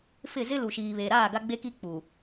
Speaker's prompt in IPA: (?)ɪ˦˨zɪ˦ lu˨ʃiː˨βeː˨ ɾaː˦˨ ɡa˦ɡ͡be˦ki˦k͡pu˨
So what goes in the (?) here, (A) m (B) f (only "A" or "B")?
B